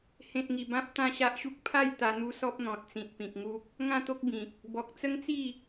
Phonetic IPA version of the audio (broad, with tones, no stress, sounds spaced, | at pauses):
h ẽ˨ t̚ ŋ i˨˩ b ã˦ p̚ t̪ ã˥˧ ɕ a˦ ʔ ɕ u˦ k̚ pʰ a˥˧ j t̪ a˧ n̪ u˦ s ɔ˦ p̚ n̪ ɔ̃˨ t̚ t͡s ĩ˨ t̚ p ĩ˨ k̚ ŋ u˦ k̚ | ŋ ã˥˧ t̪ o˦ k̚ b ĩ˨ k̚ | b ɔ˨ k̚ t͡s ə˦ ŋ t͡s i˥˧